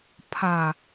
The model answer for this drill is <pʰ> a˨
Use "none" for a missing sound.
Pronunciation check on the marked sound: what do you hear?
pʰ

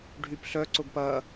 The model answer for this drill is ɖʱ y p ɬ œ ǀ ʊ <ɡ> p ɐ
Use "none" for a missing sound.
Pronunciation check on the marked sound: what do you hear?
ɡ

